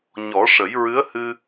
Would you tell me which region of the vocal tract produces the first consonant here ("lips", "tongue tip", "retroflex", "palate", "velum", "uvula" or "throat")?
palate